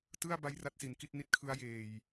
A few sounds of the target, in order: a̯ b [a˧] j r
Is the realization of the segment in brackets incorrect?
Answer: no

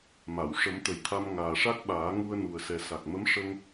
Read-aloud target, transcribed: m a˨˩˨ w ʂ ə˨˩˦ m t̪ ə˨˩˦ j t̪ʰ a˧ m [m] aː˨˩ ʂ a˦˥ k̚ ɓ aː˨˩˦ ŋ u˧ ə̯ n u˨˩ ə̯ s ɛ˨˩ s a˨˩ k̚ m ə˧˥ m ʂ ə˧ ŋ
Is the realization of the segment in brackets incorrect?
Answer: yes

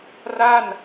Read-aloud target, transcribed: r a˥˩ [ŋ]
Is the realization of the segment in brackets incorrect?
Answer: yes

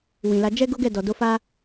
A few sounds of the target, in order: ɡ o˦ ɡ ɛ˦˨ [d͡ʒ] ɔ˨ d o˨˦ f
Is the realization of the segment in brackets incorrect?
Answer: yes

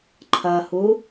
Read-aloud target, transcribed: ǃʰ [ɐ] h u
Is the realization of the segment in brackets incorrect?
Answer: no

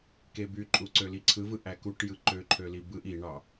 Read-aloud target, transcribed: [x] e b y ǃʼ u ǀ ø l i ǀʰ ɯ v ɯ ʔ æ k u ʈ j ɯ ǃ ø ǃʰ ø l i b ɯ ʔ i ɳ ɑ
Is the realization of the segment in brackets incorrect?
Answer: yes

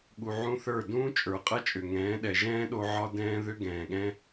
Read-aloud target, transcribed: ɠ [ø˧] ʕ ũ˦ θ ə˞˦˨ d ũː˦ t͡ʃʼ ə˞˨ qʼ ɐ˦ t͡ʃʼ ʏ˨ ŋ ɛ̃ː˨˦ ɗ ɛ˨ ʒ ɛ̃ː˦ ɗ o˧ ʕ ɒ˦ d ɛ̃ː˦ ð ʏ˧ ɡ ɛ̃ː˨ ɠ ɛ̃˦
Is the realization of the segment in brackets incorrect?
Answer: yes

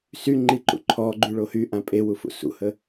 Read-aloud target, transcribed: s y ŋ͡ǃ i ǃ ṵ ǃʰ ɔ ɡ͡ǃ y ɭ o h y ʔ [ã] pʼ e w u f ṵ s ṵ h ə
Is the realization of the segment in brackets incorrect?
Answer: no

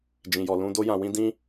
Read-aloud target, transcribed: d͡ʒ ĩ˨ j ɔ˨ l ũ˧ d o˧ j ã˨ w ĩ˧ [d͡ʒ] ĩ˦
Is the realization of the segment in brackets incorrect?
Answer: yes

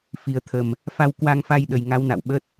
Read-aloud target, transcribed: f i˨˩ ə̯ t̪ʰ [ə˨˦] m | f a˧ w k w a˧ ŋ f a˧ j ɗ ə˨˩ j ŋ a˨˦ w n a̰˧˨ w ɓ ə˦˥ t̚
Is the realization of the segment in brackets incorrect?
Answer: yes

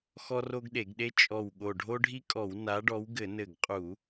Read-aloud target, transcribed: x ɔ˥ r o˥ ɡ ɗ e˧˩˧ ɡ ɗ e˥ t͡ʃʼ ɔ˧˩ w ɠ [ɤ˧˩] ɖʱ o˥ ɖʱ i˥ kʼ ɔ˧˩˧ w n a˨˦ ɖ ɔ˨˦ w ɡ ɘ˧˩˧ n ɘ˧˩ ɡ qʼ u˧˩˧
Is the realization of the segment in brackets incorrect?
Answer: yes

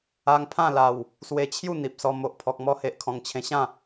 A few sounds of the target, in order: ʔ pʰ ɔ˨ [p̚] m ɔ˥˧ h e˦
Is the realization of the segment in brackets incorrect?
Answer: yes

